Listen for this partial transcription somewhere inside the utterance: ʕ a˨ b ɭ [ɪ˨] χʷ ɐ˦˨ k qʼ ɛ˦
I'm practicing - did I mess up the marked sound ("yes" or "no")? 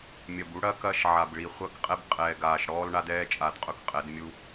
yes